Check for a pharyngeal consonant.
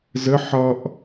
present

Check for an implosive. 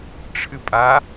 absent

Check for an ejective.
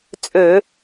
present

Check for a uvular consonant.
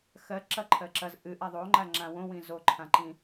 absent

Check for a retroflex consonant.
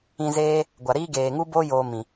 absent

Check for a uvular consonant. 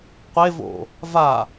present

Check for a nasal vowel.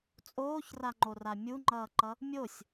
absent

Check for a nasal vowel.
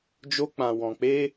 present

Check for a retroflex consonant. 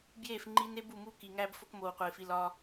absent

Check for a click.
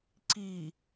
present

